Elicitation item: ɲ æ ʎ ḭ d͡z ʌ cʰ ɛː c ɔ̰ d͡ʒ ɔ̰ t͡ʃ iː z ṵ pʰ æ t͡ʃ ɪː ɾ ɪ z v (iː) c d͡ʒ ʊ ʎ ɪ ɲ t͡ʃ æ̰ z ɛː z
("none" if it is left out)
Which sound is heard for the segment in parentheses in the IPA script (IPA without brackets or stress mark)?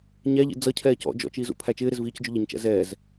iː